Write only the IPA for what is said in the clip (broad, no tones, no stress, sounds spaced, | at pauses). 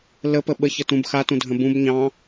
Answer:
l ə p ə ɓ ə ç ə t ũ b x a t ũ dʱ ə̃ b ũ b ɲ ɑ̃